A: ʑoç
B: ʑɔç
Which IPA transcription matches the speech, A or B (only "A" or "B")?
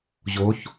A